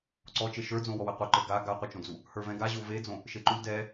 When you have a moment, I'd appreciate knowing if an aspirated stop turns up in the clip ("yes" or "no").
no